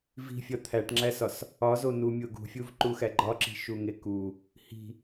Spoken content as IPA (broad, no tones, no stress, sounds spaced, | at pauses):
v i̤ fʲ ɒ t̪ʰ æ ʈ ŋ͡ǁ æ s ɒ s | ɒ z o n u mʲ o ɡ ṳ fʲ u v ǃ u x æ ɡ͡ǃ ɒ ǁ i̤ ʃ u ŋ e k u | h i̤